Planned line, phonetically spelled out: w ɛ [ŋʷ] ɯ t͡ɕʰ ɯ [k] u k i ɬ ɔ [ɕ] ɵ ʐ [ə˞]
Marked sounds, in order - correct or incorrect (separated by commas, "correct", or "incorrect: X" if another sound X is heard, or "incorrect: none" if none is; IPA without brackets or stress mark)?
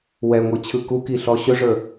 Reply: correct, correct, correct, correct